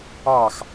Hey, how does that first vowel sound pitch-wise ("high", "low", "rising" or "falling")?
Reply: falling